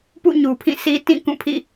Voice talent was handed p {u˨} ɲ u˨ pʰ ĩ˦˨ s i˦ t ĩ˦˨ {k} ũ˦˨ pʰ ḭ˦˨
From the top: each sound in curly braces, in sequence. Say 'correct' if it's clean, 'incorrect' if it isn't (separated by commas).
incorrect, correct